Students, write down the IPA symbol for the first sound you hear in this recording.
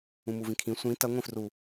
ũ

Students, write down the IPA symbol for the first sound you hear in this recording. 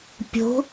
pʲ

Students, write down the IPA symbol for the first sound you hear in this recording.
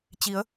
t͡ɕ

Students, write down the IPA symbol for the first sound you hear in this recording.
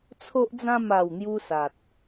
t͡sʰ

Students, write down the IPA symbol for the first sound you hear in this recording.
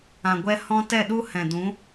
ã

